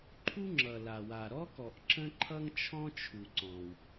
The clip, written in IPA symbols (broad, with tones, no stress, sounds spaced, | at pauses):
ǃʰ u˥ ŋ͡ǁ ʌ˩ l a˩ w a˩ ɾ ɔ˥ k ɔ˩ ʔ ǁ ə̃˥ ǃʰ ʌ˥ ŋ t͡ʃʰ ɔ̃˥ t͡ʃʰ u˩ ǀ ɔ̃˩ w